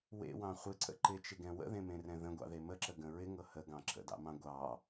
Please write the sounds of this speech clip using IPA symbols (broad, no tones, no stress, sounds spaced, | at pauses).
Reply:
w ḛ w ɑ̃ χʷ e ǀ ə̰ ǃ ɪ t͡ʃ ɪ ɡ ɛ̃ w ə̰ ð ẽ m ẽ r ɛ̃ ð ə̃ ɡʷ ɑ̰ ð e m ə ǁ ə ɡ ə̃ ɹ ɪ ŋ ɤ h ə ɡ ɑ̃ ǁ ə̰ d ɑ̰ m ɑ̃ ɡʷ ɑ